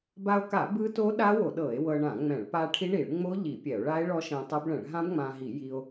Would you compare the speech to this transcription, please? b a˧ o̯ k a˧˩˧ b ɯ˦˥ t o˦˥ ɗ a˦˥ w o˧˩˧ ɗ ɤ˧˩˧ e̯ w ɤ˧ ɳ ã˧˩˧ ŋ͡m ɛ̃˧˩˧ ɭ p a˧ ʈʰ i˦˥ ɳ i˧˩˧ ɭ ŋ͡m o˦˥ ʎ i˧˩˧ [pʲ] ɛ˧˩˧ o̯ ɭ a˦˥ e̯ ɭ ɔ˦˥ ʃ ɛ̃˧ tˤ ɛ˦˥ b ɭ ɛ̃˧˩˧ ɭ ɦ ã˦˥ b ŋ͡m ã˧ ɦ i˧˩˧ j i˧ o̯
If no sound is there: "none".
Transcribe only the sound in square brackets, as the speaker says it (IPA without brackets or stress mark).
pʲ